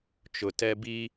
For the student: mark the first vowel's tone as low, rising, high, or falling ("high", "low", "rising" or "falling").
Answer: low